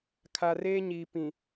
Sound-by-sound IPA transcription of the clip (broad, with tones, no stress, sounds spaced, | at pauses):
kʰ a˨ r eː˦ ɲ iː˨ p ĩ˨